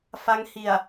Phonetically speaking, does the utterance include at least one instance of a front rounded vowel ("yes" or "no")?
no